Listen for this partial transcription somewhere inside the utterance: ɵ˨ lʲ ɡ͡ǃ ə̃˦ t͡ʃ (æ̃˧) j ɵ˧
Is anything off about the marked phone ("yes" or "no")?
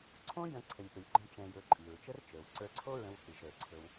yes